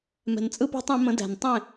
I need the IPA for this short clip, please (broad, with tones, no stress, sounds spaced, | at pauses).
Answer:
m ɛ̤˨ n t͡sʼ ɯ˦ p æ̤˦ tˤ æ̃˨˦ m ə̃˨˦ d æ̤˨ n tˤ ẽ˦˨